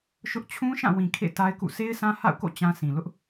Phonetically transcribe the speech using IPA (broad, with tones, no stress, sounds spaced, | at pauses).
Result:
ʃ ʊ˦ ʔ t͡ɕʰ ũ˦ ʃ ã˦˨ w ĩ˨ kʰ ḛ˦˨ t a˦ ɪ̯ k ṵ˦˨ sʰ e˦ ɪ̯ sʰ ã˦ h a̰˦˨ ʊ̯ k o̰˦˨ t͡ɕ ã˦ s ĩ˨ l ʊ˦ ʔ